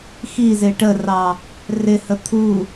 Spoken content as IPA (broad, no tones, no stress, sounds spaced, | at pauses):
x i z ɪ ʈ ə r ɑ | r ɪ h ə t̪ʰ u